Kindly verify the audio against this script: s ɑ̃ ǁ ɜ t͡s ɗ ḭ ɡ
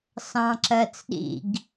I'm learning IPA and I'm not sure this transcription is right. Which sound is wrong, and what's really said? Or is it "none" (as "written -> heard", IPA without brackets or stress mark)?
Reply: none